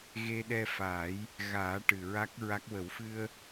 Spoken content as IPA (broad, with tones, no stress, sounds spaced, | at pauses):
ɣ e˧ ɗ ɛ˧ f a˨˩˦ j | ɣ aː˨˩˦ ʈ ɨ˨˩ ɹ a˦˥ k̚ ɹ a˦˥ k̚ w ə˨˩˦ w f ɨ˧ ə̯